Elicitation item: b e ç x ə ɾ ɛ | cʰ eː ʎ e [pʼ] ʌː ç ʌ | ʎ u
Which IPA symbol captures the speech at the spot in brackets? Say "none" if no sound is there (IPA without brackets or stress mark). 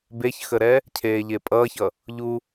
pʼ